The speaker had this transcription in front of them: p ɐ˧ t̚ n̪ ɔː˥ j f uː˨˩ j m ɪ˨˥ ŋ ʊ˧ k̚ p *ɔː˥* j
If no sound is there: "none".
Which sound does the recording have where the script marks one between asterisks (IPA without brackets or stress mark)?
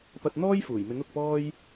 ɔː˥